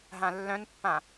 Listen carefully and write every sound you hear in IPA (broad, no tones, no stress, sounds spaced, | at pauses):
ɦ ã lː œ̃ n pː ã